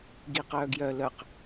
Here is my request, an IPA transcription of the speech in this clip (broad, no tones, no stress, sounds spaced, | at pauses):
ɡ i q œː ɡ j œ l œ q